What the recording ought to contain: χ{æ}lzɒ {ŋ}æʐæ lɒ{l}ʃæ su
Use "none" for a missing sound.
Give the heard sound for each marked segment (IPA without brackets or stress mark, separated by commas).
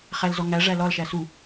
æ, ŋ, l